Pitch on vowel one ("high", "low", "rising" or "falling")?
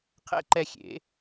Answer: high